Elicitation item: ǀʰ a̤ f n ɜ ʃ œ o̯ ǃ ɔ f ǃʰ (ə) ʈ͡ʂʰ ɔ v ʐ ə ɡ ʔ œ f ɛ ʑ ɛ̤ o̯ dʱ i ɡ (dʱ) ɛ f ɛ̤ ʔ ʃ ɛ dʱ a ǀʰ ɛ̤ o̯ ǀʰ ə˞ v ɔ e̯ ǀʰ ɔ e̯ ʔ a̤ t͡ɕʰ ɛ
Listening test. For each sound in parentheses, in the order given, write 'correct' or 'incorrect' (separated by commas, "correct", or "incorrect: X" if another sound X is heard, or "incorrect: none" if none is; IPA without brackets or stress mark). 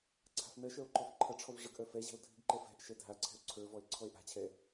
incorrect: ʌ, incorrect: ǃ